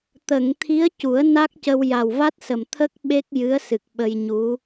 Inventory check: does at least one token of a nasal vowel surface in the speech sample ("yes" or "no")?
no